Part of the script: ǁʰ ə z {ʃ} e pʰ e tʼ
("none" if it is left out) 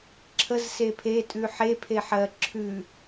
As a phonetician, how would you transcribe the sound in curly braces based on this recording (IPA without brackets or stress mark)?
s